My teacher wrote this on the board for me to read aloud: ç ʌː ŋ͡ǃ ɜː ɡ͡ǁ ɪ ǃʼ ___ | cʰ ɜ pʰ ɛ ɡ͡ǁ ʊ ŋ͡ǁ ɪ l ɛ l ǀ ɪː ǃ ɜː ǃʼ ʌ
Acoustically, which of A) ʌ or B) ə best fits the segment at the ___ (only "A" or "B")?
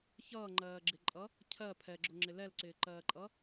A